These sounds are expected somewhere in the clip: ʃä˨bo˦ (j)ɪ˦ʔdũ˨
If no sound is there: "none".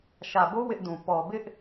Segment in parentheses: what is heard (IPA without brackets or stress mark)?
w